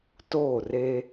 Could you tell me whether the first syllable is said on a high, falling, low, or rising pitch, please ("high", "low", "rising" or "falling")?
falling